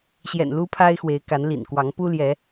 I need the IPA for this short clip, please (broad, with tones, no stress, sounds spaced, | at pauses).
ɕ j ɛ̰˨˩ n l u˦ pʰ a˦ ɪ̯ x w e˨˦ ɪ̯ k a˨˦ n l ḭ˨˩ n k w ɑ˨˦ ŋ p u˦ l j ɛ˨˦